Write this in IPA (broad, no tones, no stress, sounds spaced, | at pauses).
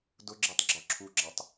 d ʊ ɡ͡ǁ e tˤ ɡ͡ǁ ɔ ǁʰ u ɡ͡ǁ a tˤ